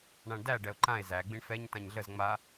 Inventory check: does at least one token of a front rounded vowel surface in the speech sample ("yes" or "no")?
no